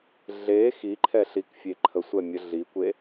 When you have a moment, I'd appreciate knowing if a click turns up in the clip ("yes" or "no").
yes